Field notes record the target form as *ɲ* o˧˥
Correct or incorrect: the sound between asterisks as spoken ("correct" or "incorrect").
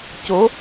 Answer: incorrect